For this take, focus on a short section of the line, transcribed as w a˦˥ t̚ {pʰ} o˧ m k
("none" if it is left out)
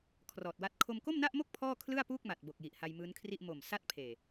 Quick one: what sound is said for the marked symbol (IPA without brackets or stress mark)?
kʰ